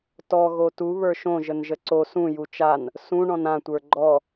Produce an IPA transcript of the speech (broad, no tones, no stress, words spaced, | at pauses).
tɔ ɣotu βə˞ʃõ ʒənʒəǀo sũ jut͡ʃan | sũ ɳɔ̃nã tʷə˞ɡ͡ǃɔ